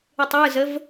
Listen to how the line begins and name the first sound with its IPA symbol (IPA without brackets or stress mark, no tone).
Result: ɯ